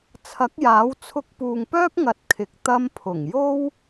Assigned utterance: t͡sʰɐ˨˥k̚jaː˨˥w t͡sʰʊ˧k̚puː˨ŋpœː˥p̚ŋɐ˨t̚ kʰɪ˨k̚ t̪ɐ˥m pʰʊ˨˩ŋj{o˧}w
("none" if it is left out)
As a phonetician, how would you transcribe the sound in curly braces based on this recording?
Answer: o˥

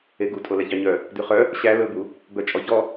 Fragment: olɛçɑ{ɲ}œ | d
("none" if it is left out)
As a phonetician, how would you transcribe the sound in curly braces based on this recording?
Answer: ɲ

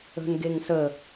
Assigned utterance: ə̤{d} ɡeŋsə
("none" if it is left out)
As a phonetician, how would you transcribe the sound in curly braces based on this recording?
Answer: n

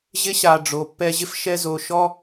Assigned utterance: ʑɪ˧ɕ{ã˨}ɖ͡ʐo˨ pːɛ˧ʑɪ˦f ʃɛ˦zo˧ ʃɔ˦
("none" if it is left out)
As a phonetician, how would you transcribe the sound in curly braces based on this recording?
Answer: a˨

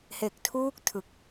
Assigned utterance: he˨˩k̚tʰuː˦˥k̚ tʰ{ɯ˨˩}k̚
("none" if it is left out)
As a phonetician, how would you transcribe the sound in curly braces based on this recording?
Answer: ɯ˨˩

